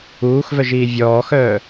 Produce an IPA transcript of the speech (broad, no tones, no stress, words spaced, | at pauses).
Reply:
uːxvœʒiː vʲɔːxœː